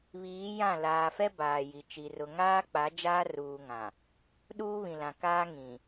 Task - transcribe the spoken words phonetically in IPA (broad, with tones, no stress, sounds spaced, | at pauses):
β iː˨˦ j ã˦˨ l aː˨ f ɛ˦ b aː˨ j i˨ t͡ʃ i˨ r ʊ˨ ŋ aː˦ k͡p a˨˦ d͡ʒ aː˦ r uː˨ ŋ ã˨ | ɗ uː˦ β ĩ˨ l ã˨ k aː˦ ŋ ĩ˨